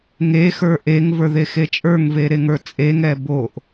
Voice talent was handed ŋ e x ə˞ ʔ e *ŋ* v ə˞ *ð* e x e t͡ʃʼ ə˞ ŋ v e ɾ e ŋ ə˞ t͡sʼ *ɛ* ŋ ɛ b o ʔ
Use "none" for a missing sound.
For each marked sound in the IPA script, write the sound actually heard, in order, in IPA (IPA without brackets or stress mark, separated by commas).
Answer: ŋ, ð, e